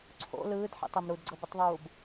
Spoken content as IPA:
ǀʰ o̰ l ɯː d ħ ḭ tˤ e m ɾ u d ɡ͡ǀ ɤ b ɯ tˤ ðˤ uː b

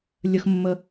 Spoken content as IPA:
lʲ ə x mː ə

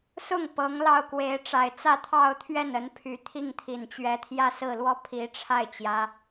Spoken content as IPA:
s ʊ˥˩ ŋ p ɤ˧˥ ŋ l ɑ˥˩ ʊ̯ k w e˧˥ ɪ̯ ʈ͡ʂ a˨˩ ɪ̯ t͡s ä˥˧ t̪ʰ ɑ˥˧ ʊ̯ t̪ʰ ɥ ɛ˥˩ n ə˧˥ n pʰ y˨˩ t̪ʰ i˥˩ ŋ t̪ʰ i˨˩ n t͡ɕ ɥ ɛ˧˥ t̪ʰ j ä˥˧ s ɹ̩˥˧ l w ɔ˥˩ pʰ i˧˥ ʈ͡ʂʰ a˥˩ ɪ̯ t͡ɕ j ä˧˥

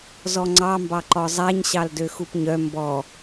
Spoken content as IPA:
z ɔ ŋ͡ǀ ɑ m b ɑ ǃ ɔ zˤ æ ɲ ɕ ɑ l d ø x u p ɲ œ m b ɔ

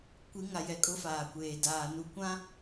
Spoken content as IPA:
kʷ i˨˦ ŋ a˨ j ɛ˨ kʼ ʊ˦ f aː˨ kʷ eː˨ d aː˨ n u˨ kʷ ã˦

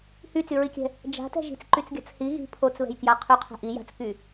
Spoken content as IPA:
h y t͡s y ɹ i kʲ ɛ̤ | d͡ʒ a̤ t ɛ̤ ʒ i̤ t͡s ǃ y t͡s ɡʲ a̤ t͡s h i ɣ i̤ pʰ o t͡s β ɛ̤ j k j a qʰ y qʰ ɛ̤ ʔ i j a̤ t͡s k y

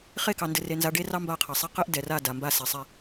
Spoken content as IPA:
χ e˦˨ k ɑ˨ n d ɘ˨ r e˨ n z a˨˦ ɖ e˦ r ɑ˦ m b a˦˨ qʰ ɘ˨ sˤ e˦ q ɘ˦ ʔ d ɛ˨ r a˦˨ d a˨ m b a˦ s ɛ˨ sˤ ɛ˦

